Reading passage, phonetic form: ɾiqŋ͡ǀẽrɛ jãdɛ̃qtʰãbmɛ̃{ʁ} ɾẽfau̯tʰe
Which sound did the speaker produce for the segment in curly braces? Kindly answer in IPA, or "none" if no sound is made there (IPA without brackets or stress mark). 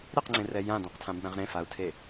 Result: ʁ